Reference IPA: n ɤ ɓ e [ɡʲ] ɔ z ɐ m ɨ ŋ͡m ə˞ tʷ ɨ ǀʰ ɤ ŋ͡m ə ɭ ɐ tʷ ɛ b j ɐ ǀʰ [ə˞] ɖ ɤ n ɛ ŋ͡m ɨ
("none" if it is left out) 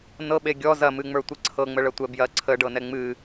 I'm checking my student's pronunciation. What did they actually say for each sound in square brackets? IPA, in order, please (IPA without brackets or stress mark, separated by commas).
ɡʲ, ə